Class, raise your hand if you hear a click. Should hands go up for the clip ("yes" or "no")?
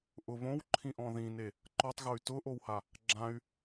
yes